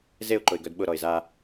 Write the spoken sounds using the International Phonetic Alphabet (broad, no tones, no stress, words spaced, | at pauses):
zeʊ̯ǃʊɪ̯ɡœd ɓʊɾɔɪ̯ za